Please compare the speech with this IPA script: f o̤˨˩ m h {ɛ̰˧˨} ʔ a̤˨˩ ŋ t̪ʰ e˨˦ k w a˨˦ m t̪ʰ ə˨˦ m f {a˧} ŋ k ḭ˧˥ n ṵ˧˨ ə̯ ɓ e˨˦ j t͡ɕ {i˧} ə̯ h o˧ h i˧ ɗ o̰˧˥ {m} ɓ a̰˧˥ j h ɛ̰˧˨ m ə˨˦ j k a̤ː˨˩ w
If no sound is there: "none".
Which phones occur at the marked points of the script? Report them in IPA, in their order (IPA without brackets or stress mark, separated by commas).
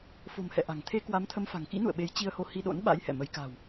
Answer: ɛ̰˧˨, a̤˨˩, i˧, n